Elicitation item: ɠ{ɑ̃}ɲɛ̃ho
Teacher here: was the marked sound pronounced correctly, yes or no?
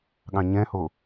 yes